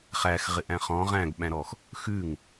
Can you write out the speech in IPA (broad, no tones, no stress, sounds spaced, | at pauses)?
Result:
χ æ x ʁ ɪ ʔ æ̃ χ ɔ̃ ʁ æ̃ ɡ ɓ æ̃ ɾ ɔ x | x ʉ ŋ